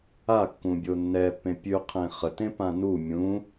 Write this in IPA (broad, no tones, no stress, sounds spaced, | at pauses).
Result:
a kː ũ bʲ o nː ɛ pː ẽ pʲ ʉ qʰ ẽ χ ə t ẽ p ã n u mʲ ũ